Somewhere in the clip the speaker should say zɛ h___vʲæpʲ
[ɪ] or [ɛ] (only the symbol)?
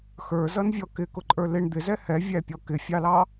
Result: ɛ